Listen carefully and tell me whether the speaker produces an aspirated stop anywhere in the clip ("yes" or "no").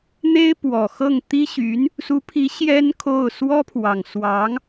yes